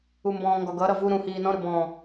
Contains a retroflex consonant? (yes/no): no